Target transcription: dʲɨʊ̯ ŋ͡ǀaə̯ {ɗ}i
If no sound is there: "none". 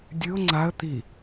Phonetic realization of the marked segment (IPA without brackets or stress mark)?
t̪